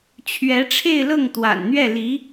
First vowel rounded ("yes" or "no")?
no